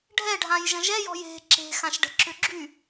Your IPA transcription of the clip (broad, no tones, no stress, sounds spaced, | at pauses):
ɖʱ ɛ ɖʱ ã j ʒ ə̃ ʒ ɛ j ɔ̤ j e̤ ǁ e̤ x ã ʃ ɖ ə̤ ǁ ʏ ɡ͡ǁ y